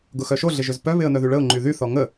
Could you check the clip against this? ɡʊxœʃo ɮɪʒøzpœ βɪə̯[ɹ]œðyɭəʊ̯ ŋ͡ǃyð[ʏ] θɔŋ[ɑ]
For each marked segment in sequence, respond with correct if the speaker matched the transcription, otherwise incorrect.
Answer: incorrect: n̪, incorrect: y, incorrect: ə

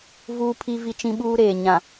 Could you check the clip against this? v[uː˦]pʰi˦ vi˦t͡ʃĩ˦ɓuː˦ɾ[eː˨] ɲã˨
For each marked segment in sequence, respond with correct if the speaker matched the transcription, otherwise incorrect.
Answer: correct, correct

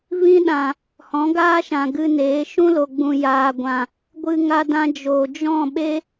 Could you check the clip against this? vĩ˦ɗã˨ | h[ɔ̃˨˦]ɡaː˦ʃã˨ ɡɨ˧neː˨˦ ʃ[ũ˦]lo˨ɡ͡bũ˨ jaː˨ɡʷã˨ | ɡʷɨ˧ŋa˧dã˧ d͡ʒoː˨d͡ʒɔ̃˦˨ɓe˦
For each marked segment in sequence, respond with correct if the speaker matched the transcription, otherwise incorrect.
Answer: correct, correct

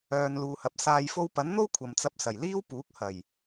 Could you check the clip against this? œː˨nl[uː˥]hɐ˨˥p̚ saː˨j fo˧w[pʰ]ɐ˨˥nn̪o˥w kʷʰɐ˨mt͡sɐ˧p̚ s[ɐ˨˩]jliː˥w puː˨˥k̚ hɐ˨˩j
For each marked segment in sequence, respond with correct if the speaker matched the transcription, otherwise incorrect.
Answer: incorrect: uː˨, incorrect: p, correct

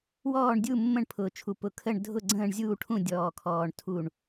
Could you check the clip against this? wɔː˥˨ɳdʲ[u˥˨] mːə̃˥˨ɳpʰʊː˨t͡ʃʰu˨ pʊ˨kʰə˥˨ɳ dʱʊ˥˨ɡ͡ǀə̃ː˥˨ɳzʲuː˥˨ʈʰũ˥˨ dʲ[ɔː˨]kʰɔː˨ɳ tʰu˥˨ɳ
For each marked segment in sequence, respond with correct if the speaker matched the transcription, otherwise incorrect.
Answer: correct, correct

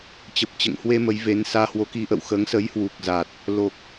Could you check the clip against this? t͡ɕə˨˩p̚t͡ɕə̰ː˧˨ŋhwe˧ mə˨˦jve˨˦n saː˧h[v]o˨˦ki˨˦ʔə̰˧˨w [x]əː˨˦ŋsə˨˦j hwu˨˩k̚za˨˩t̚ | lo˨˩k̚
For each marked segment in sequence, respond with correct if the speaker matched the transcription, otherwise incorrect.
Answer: incorrect: w, correct

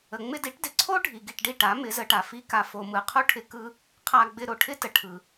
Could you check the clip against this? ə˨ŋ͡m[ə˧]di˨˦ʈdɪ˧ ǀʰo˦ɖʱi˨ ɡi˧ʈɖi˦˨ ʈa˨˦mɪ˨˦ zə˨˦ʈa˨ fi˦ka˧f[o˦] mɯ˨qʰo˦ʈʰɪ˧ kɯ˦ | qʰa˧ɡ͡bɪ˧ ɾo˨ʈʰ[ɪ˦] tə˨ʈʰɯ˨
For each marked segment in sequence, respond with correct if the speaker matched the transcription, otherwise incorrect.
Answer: incorrect: ɪ˧, incorrect: o˧, correct

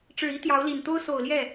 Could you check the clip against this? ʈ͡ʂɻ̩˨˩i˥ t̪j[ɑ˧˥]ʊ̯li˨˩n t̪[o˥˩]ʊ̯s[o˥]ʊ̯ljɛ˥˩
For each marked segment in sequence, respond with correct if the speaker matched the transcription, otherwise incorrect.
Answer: correct, incorrect: o˥, incorrect: o˨˩

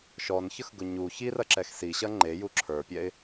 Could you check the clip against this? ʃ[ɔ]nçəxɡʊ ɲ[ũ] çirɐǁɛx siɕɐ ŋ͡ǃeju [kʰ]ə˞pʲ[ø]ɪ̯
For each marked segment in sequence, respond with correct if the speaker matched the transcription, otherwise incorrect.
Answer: correct, incorrect: u, incorrect: ǁʰ, incorrect: ɛ

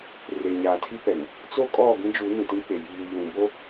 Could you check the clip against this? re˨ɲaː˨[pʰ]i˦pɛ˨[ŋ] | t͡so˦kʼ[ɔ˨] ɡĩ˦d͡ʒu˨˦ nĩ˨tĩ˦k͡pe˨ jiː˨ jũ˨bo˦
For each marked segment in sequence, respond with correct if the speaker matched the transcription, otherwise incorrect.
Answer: incorrect: tʰ, correct, incorrect: ɔ˦˨

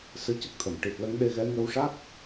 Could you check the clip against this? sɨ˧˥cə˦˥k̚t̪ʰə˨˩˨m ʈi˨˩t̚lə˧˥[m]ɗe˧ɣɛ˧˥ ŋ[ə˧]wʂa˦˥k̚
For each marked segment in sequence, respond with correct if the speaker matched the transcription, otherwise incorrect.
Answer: incorrect: ŋ, correct

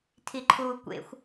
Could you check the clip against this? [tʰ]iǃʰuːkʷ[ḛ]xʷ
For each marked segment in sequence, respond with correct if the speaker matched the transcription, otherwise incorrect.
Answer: correct, correct

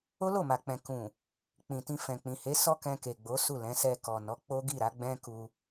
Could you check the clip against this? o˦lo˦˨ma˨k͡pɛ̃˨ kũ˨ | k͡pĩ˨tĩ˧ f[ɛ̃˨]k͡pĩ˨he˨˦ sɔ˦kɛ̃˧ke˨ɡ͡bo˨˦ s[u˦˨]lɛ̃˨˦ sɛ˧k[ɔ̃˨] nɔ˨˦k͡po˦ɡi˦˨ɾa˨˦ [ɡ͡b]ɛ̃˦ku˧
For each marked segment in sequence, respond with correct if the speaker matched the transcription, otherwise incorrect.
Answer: correct, correct, incorrect: ɔ˨, correct

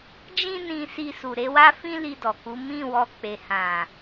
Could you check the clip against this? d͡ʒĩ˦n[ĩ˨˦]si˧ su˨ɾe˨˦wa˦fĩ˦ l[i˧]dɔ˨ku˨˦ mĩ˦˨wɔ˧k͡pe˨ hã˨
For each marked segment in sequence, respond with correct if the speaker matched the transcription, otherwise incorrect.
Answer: incorrect: ĩ˧, correct

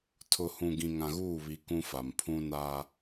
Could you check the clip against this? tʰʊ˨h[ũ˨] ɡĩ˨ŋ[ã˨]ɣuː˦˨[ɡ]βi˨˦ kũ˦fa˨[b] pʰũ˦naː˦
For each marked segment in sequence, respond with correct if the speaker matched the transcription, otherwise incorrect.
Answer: correct, correct, incorrect: none, incorrect: m

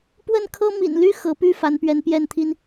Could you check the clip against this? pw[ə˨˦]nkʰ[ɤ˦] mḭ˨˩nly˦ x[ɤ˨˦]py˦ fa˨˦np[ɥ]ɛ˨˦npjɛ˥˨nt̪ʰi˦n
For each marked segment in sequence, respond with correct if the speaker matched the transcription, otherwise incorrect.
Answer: incorrect: ə˥˨, correct, correct, correct

